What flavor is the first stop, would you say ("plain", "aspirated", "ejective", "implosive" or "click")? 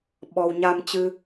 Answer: implosive